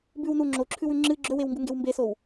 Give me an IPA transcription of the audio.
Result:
b ʉ w n u ŋ͡ǁ o ǁʰ ʉ w ʉ ŋ͡ǁ ɨ ɡ͡ǁ ɵ w e w ŋ ɡ u ŋ ɡ e w m b e s o w

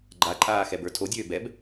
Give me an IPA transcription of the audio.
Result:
ɡ͡ǃ a ǃʼ aː x ɛ b ə˞ tʰ o dʲ øː b ɛ b

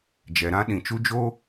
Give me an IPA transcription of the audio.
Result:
d͡ʒ ɛ˨ ɾ ã˦ ɗ ĩ˨ t͡ʃ u˦ d͡ʒ oː˦

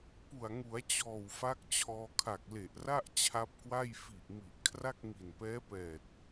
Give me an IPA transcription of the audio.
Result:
p u˨˩ a̯ ŋ u˩˦ a̯ t͡ɕ ɔː˨˩ w f a˦˥ k̚ t͡ɕʰ ɔː˧ kʰ a˨˩ k̚ l e˨˩ ʔ r a˥˩ ʔ t͡ɕʰ a˦˥ p̚ k w a˥˩ j f i˨˩ ʔ m i˨˩ ʔ kʰ r a˥˩ k̚ ŋ i˨˩ n p ɛː˦˥ p ɛː˨˩ t̚

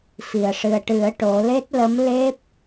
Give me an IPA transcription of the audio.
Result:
f i˨˩˨ ə̯ ʂ ɨ˨˩ ə̯ ʈ ɨ˨˩˦ ə̯ ʈ o˨˩˦ l e˦˥ t̚ l ə˧˥ m l e˦˥ p̚

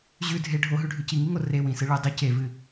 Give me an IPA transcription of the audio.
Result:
ʑ ʉ dʱ e ɖʱ o ɦ ʉ ɖʱ ʉ c i ŋ i ŋ o r e w ĩ s ɨ ɭ ɨ dˤ ɵ c e v ɨ

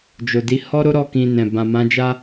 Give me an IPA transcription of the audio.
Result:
d͡ʒ o˨ d i˨˦ h ɔ˦ ɾ o˦ ɾ ɔ˦˨ k ĩ˧ n ɛ̃˨ b ã˨ m ã˨˦ d͡ʒ a˦

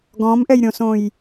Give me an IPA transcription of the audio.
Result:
ɡ ɔ̃ m ʔ ɛ j ɾʲ õ s õ j

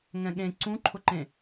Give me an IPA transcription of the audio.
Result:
ŋ ɛ̃ ɠ ẽ ǀ ũ ǃʰ ʊ ǃ ẽ

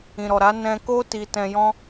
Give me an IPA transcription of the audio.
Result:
ĩ˨ ɾ ɔ˨ ɾ a˨˦ n ɛ̃˧ k o˦ t i˧ t ɛ̃˧ j ɔ̃˧

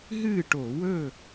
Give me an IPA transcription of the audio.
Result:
ɦ ɨː˥˨ ʈ o˧˩˧ w ɵ˥˨

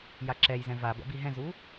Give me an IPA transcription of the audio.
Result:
j a ǁ ɛ j z ɛ̃ v a b ɛ̰ b i ɦ ɛ̃ z u

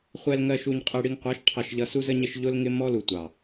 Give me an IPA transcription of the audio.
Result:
χʷ ɛ˨ l ŋ ɜ˨ ʃ u˨ ɲ qʼ ɛ˨ ɽ i˨ ŋ qʷ ɑ˨˦ ʃ ʈʰ ɑ˨ ʃ ʎ ʌ˨ s u˦ z ə˦ ɲ ɪ˦ ʃ ʎ ʊ˦ l ŋ ɪ˦ m ɔ˦ l u˨ tʷ ɑ˨

